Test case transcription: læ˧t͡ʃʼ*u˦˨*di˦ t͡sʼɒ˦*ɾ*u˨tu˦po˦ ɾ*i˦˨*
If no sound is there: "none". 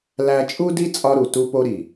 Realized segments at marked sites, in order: u˦, ɾ, i˨

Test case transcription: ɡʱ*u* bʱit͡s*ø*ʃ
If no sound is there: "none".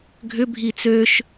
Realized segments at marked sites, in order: ʏ, ø

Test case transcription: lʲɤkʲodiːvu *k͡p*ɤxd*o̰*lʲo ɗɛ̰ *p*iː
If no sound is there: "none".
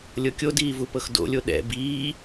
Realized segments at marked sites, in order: p, o̰, b

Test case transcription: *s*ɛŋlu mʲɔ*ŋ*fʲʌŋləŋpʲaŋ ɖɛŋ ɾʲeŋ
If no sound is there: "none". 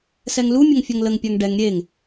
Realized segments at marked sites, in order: s, ŋ

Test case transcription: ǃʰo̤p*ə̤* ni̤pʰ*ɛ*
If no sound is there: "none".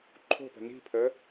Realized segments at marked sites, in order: ə̤, ə

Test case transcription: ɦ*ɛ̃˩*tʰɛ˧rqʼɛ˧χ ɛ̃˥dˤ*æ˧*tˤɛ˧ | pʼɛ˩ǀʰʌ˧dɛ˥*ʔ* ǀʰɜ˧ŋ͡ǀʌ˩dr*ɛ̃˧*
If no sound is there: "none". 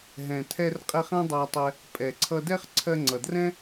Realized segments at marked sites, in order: ɛ̃˩, æ˧, χ, ɛ̃˥

